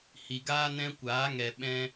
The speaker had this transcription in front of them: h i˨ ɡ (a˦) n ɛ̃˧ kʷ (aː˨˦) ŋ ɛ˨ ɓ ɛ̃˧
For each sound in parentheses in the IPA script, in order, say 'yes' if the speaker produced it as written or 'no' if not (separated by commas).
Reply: no, yes